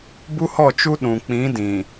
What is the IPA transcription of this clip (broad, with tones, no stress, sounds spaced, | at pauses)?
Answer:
b u˦ h ɔ˦˨ t͡ʃ u˦ ɗ ũ˨ k͡p ĩ˨˦ d ĩ˨